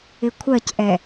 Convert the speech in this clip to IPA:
ɪ kʷʰ ɜ c ʔ ɛ

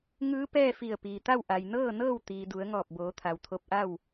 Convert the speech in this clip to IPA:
ŋ ɯː˧˥ p ɛː˥˨ f i˧˩ ə̯ p iː˩ t̪ a˥˨ w ʔ a˩ j n ɤː˥˨ n ɤː˥˨ w t̪ iː˩ d u˩˧ ə̯ ŋ ɔː˧˩ p̚ b oː˩˧ t̪ʰ a˩ w t̪ʰ o˧ p̚ ʔ a˥˨ w

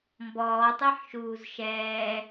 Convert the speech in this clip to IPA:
m b ɔː tˤ ɛ ħ ʃ uː z ʃ ɛː

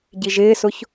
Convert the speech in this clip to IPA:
ɟ i ʒ ɪː s ʊ ç

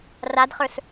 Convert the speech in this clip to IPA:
r a d χ ə˞ s

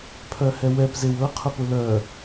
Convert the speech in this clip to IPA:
pʰ œ h ɛ w ɛ p z e w ɤ qʰ ʊ p ʊ l œ

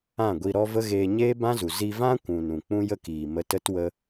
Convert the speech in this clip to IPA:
ã˦˨ ɡʷ i˧ ɾ ɔ˦ v ə˦ ɣ eː˧ ɲ eː˦ b ã˦ z u˨ z i˧ v ã˦ kʷ ũ˨ n ũ˨ k͡p ũ˦ j ə˦ k iː˨ m ə˧ t ə˦ t w ə˦

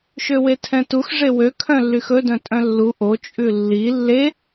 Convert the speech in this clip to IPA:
ʃ ø w e tʰ ɛ̃ t u x ʐ e w ø kʰ œ̃ lː y x ɵ d œ̃ tʼ œ̃ lː u ʔ o t͡ʃʼ ʉ lː i lː e

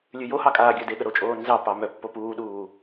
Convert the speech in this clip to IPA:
lʲ ʉ j o h ɑ kʼ aː ɡʲ œ d e ɠ ə ɾ o t͡ʃʼ oː n z ɑ p ɑ m œ pː o p uː ɗ uː

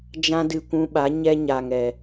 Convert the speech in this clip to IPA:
d͡ʒ ã˦ d ɨ˧ kʷ ũ˧ ɓ a˨˦ ɲ ɛ˦ ɲ a˨ ŋ ɛ˨

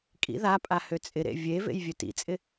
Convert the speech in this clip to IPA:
kʼ ḭ ð a pʼ a h ø t͡sʼ ɪ ɾ ḛ vʲ e v ḛ j vʲ ø t ḭ t͡sʼ ɪ

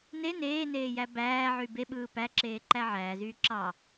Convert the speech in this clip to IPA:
n e n eː n eː j æ b æː ʕ y b e ɓ ɯː p æ ǁ eː ǃ æ ʕ æː z yː ǁ ɑ

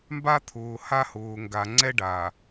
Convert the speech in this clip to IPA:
m b a˦ t̪ʰ ʊː˨ h a˦ h ʊː˨ ŋ ɡ a˨ ŋ͡ǀ ɛ˦ ɖ aː˨

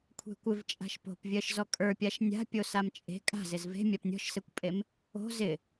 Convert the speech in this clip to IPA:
kʷʰ e̤ kʷ ɪ v t͡ʃʼ a̤ ʃ p o̤ p vʲ ɜ ʃ z ɔ kʼ ə˞ pʲ a ʃ nʲ a̤ pʲ o s a m t͡ʃʼ e̤ kʼ a̤ z ɪ z v e̤ mʲ a p nʲ ɔ̤ ʃ s e kʷ pʼ e m | o̤ z ɪ

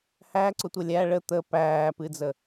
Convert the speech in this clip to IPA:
h æ ǀ ʊ tʷ ə lʲ æ ɭ ə t̪ ə p æː p ɨ d͡z ə

